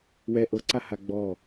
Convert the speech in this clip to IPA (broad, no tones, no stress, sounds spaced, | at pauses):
w ɛ ʔ ɤ ǀ a h a ɡ͡b ɔ